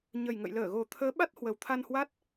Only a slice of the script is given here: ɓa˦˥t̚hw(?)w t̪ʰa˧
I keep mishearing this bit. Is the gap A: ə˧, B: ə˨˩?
B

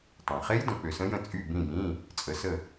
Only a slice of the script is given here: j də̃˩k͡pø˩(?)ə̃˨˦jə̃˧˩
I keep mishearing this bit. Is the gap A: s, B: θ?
A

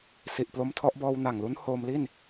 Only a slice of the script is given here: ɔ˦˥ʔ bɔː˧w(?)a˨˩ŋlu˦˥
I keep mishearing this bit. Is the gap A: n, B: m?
A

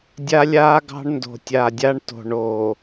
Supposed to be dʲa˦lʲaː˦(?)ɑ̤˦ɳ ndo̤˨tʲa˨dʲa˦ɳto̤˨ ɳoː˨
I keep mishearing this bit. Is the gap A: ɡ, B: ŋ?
A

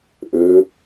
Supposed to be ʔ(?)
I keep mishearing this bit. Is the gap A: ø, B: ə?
A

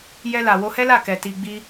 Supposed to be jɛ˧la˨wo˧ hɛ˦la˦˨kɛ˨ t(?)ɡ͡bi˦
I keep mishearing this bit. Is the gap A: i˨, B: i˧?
B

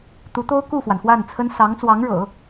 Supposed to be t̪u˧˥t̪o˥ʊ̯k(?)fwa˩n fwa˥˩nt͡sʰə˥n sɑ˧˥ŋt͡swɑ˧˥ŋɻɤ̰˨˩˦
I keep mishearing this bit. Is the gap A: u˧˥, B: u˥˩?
B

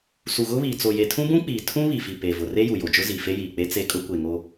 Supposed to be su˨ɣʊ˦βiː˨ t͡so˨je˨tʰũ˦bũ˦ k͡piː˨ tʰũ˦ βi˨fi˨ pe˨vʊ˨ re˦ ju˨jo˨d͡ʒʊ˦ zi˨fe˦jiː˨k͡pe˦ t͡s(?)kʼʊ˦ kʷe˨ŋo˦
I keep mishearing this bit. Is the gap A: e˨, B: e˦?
B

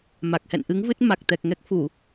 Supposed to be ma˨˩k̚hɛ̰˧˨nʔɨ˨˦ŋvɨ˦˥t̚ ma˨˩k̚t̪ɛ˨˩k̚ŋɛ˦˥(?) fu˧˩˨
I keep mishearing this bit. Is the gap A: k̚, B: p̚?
A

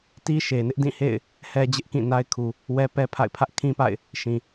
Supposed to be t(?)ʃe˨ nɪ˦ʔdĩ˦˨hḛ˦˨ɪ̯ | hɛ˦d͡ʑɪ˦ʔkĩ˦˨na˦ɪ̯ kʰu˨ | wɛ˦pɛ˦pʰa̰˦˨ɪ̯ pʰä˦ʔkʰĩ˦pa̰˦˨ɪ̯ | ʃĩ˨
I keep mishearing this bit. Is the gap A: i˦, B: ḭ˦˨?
A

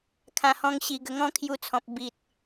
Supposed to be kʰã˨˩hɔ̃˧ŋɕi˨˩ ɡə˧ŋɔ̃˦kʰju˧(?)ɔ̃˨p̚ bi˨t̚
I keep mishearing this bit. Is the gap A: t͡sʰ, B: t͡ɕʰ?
A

